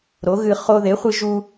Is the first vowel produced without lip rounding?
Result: no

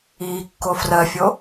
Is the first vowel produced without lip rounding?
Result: yes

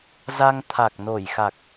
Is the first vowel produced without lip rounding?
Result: yes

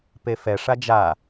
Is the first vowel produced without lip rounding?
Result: yes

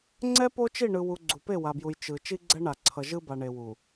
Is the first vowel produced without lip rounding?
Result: yes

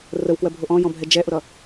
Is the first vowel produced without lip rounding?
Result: yes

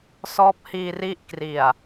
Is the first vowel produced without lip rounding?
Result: no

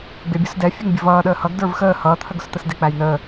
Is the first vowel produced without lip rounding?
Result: yes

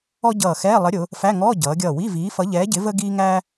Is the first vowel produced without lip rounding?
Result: no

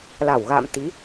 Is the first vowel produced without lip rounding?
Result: yes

